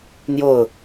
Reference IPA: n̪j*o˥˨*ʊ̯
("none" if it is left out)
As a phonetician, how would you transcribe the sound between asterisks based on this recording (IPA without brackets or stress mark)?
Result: o˥˨